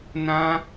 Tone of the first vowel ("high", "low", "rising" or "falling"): high